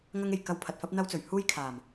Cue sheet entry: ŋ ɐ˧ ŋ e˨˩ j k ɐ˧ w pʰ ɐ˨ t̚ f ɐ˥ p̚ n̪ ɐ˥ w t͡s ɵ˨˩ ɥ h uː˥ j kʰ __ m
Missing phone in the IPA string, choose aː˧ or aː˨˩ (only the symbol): aː˨˩